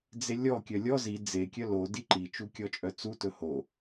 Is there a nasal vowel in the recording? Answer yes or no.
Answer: no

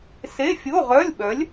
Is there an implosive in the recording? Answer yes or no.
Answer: yes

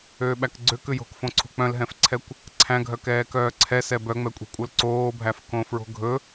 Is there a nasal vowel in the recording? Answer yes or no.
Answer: yes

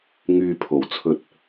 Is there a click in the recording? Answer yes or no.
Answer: no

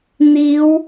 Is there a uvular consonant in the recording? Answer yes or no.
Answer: no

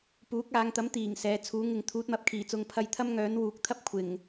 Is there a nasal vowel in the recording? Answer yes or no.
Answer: no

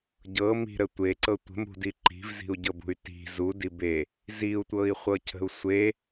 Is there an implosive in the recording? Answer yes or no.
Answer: no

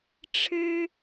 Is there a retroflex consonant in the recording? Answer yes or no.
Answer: yes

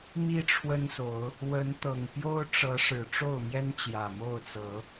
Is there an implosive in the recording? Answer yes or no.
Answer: no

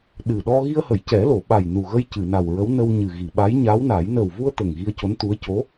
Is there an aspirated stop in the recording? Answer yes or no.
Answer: no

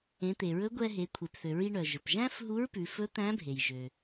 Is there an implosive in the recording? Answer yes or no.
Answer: no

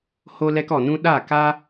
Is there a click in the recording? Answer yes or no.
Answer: no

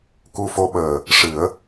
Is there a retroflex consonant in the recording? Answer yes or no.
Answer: yes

